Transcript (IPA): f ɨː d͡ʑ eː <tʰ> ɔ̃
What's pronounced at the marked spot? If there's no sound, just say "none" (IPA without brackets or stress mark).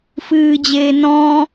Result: n